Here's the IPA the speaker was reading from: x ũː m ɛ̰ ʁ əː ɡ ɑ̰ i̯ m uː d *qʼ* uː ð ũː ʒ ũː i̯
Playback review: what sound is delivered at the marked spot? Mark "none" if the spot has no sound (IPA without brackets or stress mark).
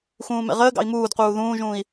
q